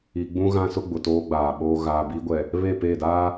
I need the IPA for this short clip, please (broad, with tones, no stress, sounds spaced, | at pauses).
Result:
i˨ ɡ͡b ũ˦ ɣ ã˦ s ʊ˦ ɡ͡b ʊ˨ t oː˦ ɡ͡b aː˨ ɓ oː˦ ɣ aː˨ b i˦ ɡʷ ɛ˨ | β e˦˨ p e˦˨ d a˦